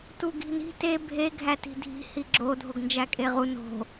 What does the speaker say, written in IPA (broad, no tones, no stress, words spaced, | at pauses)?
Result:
tuɡi̤ni̤ te bʱe ɡʱæti̤dʱi̤ hiɡ͡ǁo dʱoɡnd͡ʒækʼeʁu no̤